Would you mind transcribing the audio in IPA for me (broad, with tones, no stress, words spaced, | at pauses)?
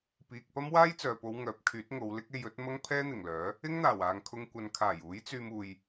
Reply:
piː˨k̚ pɐ˥mwaː˥jt͡sœː˨po˨˧w ŋœː˨˥p̚kʰyː˨˥t̚ŋo˨˧wlɪ˥k̚ e˧jɵ˨˥t̚mɐ˥ŋ pʰɛː˥n̪ɪ˨˩ŋlœː˨˥ | ɪ˥ŋn̪aː˨˩w aː˨ŋkʰʊ˧ŋ kʷɐ˨nkʰaː˨˩j uː˨˥jt͡syː˧m uː˧j